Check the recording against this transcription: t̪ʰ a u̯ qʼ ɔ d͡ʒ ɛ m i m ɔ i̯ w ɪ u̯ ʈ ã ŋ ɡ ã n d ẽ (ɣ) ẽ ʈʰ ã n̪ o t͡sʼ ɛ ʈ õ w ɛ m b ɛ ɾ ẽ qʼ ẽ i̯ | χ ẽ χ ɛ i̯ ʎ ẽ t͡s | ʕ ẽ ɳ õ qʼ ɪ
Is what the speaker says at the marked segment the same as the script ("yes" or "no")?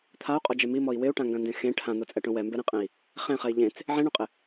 no